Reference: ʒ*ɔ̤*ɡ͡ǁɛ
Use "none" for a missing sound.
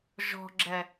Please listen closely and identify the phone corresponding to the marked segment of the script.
ɔ̤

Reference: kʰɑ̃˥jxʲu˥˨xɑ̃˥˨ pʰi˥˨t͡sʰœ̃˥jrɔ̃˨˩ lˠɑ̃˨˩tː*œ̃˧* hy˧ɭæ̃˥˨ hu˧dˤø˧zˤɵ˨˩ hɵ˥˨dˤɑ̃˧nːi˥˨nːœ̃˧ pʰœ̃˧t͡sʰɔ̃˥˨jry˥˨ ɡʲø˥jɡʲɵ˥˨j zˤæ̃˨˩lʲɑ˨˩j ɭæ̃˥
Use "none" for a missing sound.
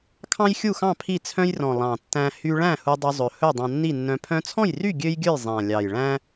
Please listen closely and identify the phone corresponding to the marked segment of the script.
æ̃˧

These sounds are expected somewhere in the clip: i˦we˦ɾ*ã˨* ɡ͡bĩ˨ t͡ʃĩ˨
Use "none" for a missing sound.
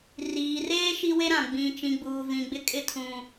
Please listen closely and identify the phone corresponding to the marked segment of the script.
ã˨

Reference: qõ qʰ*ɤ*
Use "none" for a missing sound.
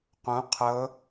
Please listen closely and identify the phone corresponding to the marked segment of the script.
ɤ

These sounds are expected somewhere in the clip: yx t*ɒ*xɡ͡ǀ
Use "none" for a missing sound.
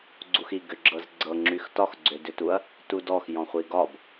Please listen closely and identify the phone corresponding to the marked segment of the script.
ɒ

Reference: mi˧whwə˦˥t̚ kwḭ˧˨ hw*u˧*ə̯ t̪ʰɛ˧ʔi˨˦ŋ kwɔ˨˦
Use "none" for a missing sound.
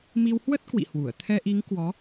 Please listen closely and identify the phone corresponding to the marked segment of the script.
u˧˩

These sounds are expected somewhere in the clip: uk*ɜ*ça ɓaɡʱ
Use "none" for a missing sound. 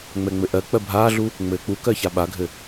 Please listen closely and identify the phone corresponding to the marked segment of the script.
ɜ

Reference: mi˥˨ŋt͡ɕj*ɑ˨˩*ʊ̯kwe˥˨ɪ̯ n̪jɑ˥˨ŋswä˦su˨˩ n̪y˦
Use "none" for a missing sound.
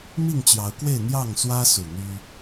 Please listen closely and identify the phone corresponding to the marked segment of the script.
ɑ˨˦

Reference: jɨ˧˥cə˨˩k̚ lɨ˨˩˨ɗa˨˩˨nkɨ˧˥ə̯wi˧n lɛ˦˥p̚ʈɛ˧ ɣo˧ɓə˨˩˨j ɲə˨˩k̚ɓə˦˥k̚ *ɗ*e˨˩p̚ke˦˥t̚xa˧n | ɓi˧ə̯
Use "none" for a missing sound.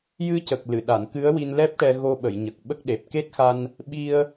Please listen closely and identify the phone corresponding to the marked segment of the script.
ɗ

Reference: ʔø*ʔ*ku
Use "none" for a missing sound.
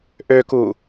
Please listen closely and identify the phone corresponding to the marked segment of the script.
none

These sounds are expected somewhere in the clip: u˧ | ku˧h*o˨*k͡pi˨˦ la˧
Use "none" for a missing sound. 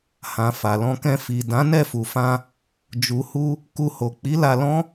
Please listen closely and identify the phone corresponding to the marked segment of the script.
o˨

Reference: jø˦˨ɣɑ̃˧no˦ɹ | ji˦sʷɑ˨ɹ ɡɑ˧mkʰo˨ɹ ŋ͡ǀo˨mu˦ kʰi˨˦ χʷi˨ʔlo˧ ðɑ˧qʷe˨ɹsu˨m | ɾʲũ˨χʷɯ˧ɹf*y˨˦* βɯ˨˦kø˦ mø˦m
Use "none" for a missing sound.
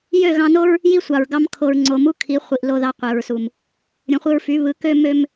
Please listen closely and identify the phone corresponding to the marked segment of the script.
y˨˦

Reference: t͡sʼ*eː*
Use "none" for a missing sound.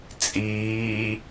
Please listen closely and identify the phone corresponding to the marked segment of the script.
iː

